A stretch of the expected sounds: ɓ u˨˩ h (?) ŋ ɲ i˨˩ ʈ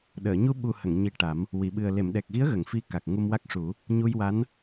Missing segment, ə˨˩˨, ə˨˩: ə˨˩˨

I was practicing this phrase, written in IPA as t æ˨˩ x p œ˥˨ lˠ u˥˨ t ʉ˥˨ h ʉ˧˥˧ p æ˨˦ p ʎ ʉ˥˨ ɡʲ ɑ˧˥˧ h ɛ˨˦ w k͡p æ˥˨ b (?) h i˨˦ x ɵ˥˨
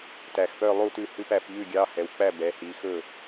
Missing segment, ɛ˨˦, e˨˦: ɛ˨˦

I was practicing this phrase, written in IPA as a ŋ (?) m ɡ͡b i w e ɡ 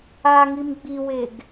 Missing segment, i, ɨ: i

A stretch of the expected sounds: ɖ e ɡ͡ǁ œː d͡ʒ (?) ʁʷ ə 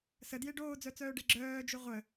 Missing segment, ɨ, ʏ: ʏ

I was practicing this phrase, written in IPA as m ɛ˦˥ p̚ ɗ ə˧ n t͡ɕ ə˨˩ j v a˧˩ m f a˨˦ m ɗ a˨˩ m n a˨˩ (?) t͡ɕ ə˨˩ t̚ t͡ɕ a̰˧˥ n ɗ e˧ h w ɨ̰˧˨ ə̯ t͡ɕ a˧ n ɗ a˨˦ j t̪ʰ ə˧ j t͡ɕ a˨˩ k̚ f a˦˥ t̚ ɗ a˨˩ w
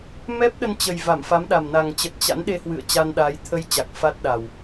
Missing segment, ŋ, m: ŋ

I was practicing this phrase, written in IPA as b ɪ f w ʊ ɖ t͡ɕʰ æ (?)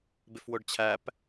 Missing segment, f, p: p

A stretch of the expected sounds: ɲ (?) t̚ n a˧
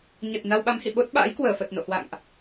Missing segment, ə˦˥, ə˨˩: ə˨˩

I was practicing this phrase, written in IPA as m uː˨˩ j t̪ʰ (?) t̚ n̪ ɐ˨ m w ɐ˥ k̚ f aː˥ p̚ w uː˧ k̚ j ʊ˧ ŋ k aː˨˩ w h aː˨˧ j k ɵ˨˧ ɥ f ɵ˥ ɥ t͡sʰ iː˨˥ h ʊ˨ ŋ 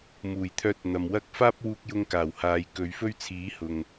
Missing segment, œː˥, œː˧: œː˧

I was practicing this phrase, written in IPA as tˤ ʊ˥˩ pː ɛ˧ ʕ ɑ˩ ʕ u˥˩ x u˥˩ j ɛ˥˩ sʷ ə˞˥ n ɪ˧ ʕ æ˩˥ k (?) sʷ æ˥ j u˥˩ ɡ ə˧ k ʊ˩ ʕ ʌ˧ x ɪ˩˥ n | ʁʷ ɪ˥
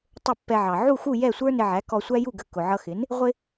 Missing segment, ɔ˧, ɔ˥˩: ɔ˧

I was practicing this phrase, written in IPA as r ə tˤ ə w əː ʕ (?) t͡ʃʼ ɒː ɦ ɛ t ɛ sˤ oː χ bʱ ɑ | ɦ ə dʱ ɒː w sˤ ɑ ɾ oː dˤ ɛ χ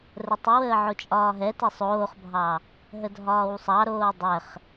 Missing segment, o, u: o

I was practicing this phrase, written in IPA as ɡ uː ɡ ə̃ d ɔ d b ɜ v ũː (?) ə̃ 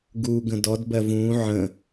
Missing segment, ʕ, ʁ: ʕ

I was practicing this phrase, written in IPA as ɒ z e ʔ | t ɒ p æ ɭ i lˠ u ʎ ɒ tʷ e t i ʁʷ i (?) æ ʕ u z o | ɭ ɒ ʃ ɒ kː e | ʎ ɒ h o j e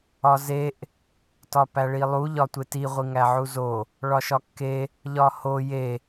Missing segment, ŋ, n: ŋ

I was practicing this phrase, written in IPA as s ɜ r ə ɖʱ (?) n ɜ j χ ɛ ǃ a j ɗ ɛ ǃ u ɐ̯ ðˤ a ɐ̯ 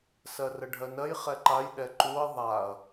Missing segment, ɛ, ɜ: ɜ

